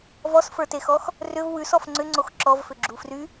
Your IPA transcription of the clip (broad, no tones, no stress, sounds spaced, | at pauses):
v ɔ s f ə˞ t e x ɔ x | r ʏ v w ʉ s ɔ f ŋ͡ǀ ʏ ŋ͡ǀ o x ǁ ɔ v f ʏ ɡ͡ǁ u f r y